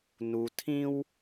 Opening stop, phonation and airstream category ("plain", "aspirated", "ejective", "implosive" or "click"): aspirated